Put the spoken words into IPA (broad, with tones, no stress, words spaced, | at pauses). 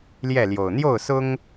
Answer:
ljɛ˥˨ljo˨˩ʊ̯ n̪jo˥˨ʊ̯sʊ˦ŋ